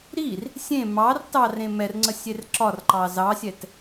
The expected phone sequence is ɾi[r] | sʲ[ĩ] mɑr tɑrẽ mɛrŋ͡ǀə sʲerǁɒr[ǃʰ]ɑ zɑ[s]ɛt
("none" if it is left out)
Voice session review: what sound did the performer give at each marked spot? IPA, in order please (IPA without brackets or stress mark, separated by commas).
r, ẽ, ǃ, sʲ